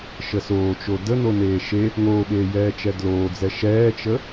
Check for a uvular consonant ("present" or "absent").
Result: absent